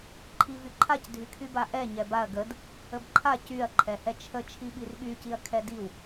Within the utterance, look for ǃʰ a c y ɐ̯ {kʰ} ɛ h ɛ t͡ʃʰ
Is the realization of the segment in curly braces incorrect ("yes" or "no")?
yes